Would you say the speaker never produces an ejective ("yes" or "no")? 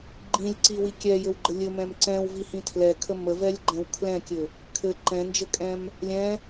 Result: no